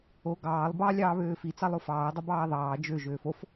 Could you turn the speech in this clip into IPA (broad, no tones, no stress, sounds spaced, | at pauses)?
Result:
o ɡ ɑː lˠ b ɑ lʲ ɑː β øː f i t͡s ɑ lˠ o f ɑː ɐ̯ dˤ o b ɑː ɐ̯ ðˤ ɑː d͡ʒ ø ʒ øː f o f